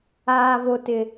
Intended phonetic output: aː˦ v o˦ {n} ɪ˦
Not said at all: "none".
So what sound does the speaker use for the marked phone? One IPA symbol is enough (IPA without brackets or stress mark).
t